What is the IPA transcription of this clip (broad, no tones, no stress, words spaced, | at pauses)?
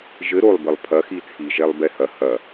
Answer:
ʒɘ ɾolˠbɘlˠ pʰɐxi t͡sʰiʒɛlˠ bɛhɐ hɐ